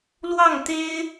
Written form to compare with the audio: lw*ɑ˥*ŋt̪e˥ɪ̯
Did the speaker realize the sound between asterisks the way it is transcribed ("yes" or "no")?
no